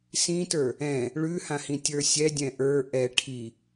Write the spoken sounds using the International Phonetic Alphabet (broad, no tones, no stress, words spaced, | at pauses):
sĩtə˞ | ɛ̃ | ɭʉhãhĩ tʲə˞sʲɛ dʲɛ̃ʔə˞ ʔɛ ʈʰi